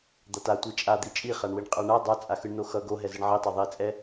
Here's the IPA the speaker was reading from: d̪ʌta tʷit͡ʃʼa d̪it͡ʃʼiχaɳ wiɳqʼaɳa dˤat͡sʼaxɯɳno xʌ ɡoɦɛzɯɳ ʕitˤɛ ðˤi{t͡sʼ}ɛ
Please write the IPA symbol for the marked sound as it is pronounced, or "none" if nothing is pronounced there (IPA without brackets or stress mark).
t͡sʼ